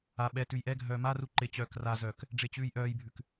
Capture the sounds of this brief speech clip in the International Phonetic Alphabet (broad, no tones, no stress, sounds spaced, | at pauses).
a ɓ ɛ t ʉ j ʔ ɛ ɡʱ œː m a r u ǃ ɪ t͡ɕ œː k r a z œː k | ɖ͡ʐ ɪː t͡ɕ ʉː j ʔ œː j bʱ ʉ k